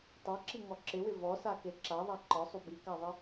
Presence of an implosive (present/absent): absent